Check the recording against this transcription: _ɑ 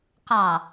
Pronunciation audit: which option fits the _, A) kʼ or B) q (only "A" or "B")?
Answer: B